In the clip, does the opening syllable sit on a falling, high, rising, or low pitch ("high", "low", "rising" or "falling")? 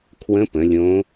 rising